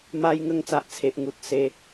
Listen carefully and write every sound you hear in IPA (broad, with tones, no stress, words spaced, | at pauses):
ma˦j ŋə˧ŋt͡sa˨ʔt͡sʰe˨ʔŋu˨t̚ se˦